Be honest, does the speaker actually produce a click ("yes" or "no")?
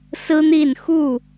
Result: no